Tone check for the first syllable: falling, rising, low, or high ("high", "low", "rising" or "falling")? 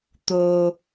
low